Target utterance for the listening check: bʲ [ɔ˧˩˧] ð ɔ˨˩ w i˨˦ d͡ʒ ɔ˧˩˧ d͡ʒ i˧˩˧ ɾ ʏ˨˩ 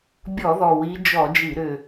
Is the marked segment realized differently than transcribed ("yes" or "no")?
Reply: no